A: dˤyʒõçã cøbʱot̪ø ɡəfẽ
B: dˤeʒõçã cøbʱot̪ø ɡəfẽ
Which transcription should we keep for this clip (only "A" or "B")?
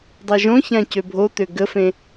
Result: B